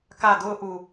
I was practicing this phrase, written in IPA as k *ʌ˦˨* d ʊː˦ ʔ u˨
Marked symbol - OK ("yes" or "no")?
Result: no